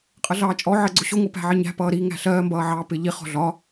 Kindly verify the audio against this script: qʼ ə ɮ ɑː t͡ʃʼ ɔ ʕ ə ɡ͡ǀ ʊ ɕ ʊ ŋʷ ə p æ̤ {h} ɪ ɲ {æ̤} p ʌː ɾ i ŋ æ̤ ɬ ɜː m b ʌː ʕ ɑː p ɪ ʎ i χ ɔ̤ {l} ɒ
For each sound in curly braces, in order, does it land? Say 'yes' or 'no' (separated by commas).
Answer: no, yes, no